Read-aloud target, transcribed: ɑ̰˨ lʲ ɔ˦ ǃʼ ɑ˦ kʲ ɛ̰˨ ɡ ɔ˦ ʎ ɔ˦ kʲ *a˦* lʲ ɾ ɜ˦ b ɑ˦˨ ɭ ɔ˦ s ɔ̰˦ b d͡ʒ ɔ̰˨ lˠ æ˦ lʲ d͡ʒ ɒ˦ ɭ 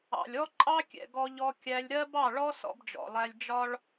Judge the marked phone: incorrect: æ˦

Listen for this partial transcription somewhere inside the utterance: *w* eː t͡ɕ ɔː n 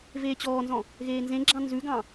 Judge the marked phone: incorrect: v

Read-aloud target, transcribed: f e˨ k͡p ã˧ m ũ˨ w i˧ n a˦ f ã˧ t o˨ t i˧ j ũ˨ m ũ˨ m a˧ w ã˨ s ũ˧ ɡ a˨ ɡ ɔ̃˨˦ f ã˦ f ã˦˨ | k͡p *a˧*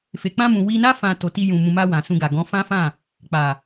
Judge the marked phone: incorrect: a˨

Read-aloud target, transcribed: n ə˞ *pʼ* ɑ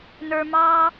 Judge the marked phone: incorrect: m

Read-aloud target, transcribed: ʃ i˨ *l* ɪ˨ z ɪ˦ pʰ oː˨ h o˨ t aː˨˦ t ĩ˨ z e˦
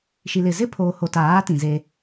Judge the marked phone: correct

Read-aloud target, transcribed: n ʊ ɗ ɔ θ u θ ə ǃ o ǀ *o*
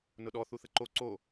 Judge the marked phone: correct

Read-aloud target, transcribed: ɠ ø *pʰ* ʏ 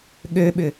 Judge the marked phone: incorrect: ɓ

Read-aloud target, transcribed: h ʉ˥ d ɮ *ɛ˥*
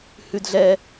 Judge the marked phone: correct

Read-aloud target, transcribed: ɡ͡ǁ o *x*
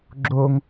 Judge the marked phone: incorrect: ŋ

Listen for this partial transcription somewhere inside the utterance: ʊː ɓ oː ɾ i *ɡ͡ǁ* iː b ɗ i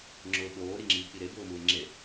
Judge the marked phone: incorrect: ŋ͡ǁ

